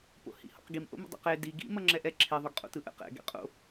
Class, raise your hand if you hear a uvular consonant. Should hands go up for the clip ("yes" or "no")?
yes